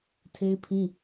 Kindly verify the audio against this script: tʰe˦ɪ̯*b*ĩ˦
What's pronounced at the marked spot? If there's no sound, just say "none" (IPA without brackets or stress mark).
pʰ